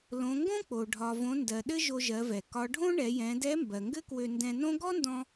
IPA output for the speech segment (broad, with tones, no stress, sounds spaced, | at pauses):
l õ˩˧ ŋ ɡ õ˥ k͡p o˩ ɖʱ ɒ˩ v õ˩˧ n d ɜ˩ ɗ ɘ˥ ʒ o˧ ʒ ɜ˩˧ v ɛ˩ k ɒ˩˧ ɖʱ õ˥ ɳ ɛ˩˧ j ɛ̃˩˧ d ɛ˧˥ m b ɜ˩ ŋ ɡ ɘ˥ k w ø˧ n d ɛ̃˧ n õ˥ ɡ ɔ˥ n d ɔ̃˧